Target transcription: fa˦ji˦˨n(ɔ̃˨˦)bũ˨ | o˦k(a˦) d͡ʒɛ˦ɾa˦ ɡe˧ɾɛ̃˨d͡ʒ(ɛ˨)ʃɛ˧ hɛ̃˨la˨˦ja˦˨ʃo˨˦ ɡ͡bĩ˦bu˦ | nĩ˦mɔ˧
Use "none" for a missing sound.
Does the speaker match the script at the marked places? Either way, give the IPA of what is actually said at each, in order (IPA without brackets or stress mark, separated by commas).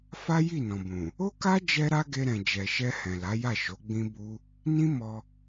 ɔ̃˨, a˦, ɛ˨